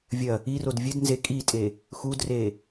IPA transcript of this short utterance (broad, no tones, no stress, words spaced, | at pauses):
vʲɐ | irod vʲɨd nze kʼitʼe | xudreː